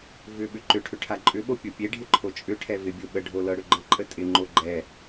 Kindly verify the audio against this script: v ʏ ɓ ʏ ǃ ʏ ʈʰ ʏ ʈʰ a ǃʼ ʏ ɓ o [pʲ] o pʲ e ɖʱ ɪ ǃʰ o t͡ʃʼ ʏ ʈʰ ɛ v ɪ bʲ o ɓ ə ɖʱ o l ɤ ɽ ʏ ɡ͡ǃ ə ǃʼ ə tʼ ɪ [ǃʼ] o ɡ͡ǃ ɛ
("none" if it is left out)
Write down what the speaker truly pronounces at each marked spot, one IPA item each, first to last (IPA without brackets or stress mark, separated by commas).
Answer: pʲ, ŋ͡ǃ